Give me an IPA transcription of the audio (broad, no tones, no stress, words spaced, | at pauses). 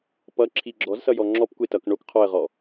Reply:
pʌǁʰi ɡ͡ǁɔzsʌjɔ ŋ͡ǁɔpkʷe tʌk ɳok qʰɔə̯ʁɔ